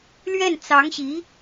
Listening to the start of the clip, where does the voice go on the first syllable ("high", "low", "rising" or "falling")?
falling